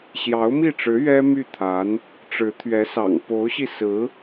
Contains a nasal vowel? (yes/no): no